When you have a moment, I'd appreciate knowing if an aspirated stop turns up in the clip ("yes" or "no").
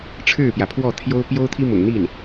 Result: yes